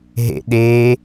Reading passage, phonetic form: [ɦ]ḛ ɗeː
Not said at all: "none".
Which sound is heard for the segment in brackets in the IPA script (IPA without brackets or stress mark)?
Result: ɦ